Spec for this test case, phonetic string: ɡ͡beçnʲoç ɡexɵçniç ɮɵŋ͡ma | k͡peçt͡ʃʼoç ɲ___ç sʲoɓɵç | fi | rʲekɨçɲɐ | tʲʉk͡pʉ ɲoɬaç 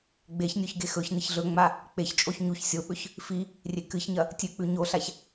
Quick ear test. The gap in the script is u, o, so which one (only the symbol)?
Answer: u